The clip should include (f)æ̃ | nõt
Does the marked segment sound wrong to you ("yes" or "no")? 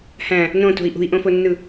yes